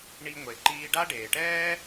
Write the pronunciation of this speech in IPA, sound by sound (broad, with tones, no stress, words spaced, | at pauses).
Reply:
ɳi˧ŋʷe˩ǃiː˧ɖa˥ ɖeː˩ʈɛː˥